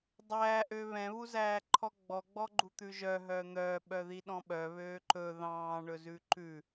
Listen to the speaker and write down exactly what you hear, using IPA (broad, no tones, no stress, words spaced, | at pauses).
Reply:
dˤæːʔøː βɛ̃βuzæːǃʰɔ ɡ͡bɔɡ͡bɔɡ͡ǃut̪ʉ ʒœɦœː n̪œːɓœðiɗɔ̃ ɓœβøː ǃɵ ðɑ̃ːɳɵzʉ ǃʉ